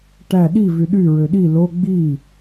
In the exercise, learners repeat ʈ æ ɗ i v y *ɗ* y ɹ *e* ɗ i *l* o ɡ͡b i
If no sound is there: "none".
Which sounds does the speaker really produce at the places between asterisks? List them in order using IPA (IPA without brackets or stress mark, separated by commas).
ɗ, ø, l